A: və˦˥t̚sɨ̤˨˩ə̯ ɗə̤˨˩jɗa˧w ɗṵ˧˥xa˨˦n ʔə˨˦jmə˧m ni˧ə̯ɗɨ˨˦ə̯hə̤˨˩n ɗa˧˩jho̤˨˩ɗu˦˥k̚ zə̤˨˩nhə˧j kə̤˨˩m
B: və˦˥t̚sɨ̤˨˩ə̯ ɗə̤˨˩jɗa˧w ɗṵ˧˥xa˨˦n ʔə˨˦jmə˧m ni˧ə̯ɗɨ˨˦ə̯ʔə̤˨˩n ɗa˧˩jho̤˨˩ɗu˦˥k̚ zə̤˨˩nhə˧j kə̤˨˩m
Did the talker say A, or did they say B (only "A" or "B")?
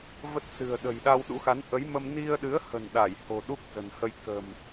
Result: A